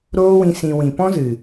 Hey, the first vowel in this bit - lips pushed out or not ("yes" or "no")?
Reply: yes